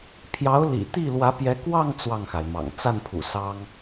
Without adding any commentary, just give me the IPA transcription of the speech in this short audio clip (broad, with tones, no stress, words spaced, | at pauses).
pʰjɑ˧˥ʊ̯lḭ˨˩ t̪i˥˩ lwä˧˥pjɛ˧˥ kwɑ˥˧ŋ t͡swɑ˥˩ŋxa˩ɪ̯mɑ̰˨˩ŋ t͡sa˥˩npʰṵ˨˩ sɑ˥ŋ